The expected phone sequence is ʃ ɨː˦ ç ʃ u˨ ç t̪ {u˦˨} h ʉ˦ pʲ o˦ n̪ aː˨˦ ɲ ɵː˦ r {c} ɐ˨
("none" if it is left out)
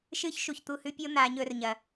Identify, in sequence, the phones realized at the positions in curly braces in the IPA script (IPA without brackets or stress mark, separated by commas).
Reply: u˦˨, ɲ